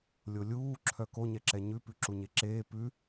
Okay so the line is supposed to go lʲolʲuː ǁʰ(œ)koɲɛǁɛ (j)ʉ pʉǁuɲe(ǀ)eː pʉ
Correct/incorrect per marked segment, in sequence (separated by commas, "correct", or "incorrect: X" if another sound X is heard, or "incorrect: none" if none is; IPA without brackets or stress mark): correct, incorrect: ɲ, incorrect: ǁ